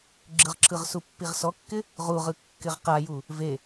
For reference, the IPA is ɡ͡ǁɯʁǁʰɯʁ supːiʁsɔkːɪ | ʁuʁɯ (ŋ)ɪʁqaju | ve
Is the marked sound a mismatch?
yes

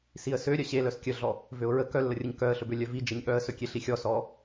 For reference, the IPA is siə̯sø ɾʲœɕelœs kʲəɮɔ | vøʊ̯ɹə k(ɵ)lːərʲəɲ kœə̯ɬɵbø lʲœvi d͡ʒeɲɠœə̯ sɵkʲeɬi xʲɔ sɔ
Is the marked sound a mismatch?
yes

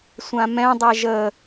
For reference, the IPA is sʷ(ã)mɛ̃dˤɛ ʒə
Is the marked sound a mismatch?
no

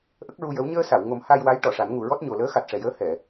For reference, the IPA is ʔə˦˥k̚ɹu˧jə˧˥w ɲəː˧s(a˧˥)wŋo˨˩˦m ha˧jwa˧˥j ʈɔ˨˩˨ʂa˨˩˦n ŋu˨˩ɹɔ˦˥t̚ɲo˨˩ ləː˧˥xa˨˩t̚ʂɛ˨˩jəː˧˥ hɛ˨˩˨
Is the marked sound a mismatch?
yes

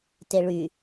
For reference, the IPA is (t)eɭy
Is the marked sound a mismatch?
no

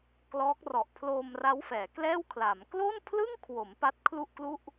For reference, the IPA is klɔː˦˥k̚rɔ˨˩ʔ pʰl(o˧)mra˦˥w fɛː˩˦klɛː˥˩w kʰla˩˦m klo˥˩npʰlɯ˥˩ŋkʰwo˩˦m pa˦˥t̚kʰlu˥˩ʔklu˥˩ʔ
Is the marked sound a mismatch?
yes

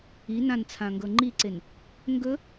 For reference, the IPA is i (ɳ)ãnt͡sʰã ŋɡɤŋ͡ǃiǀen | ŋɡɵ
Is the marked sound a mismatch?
yes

